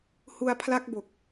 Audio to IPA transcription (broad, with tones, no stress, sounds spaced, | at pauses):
h u˧ a̯ pʰ l a˦˥ k̚ b o˨˩ k̚